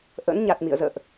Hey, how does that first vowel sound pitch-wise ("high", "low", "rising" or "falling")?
rising